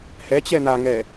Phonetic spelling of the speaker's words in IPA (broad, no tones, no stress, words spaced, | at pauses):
hɛt͡ɕɛ n̪aŋɛ